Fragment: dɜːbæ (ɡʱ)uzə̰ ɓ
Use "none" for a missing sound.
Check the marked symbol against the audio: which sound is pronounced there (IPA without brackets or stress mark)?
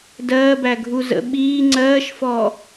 ɡʱ